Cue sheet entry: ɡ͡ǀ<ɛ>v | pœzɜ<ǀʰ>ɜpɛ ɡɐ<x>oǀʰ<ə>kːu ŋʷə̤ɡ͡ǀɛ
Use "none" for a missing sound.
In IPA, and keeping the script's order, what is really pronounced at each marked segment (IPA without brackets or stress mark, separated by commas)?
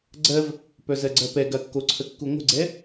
ɜ, ɡ͡ǀ, kː, ə